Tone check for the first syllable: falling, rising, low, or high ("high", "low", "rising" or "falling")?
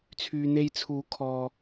low